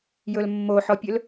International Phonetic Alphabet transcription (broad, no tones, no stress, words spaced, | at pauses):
jɵlmːoħɔpʲɵl